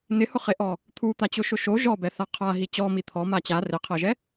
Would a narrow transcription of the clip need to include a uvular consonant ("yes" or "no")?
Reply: yes